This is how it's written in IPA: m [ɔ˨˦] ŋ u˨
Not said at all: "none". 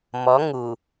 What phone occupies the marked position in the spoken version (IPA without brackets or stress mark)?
ɔ˨˦